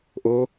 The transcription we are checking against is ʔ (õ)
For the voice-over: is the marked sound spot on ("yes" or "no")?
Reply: no